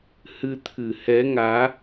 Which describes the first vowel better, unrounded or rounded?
unrounded